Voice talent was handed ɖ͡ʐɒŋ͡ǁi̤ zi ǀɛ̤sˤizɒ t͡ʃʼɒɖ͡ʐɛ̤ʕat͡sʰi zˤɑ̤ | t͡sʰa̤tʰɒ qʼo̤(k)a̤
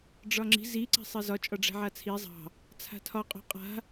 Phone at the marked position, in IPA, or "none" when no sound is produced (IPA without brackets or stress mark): qʼ